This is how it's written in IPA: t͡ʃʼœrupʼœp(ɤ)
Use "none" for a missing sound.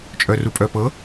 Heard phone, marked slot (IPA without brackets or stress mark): ɤ